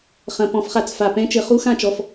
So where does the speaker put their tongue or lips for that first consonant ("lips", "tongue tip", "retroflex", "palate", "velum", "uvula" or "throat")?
uvula